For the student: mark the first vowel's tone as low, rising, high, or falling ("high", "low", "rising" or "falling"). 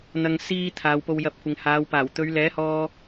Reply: low